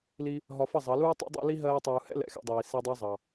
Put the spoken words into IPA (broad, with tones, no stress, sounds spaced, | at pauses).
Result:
l i˦ | ɦ ɒ˧ f ʌ˦˨ zˤ ɑ˨˦ l uː˦ tˤ ṵ˦ dˤ ɛ̰˦ l i˦ ɦ ɜː˧ tˤ uː˨ h ɛ̰˦ l ɛ̰˨ x ɛ̰˧ dˤ iː˨ s i˧ dˤ ɑ˦ zˤ ɑ˨